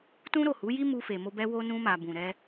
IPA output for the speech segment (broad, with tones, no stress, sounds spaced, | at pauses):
t ũ˦ ɾ o˦˨ h u˨˦ j i˦ m u˧ f e˨ m o˧ b ɛ˧ w o˧ n ũ˧ m a˨ b ũ˨ ɾ ɛ˧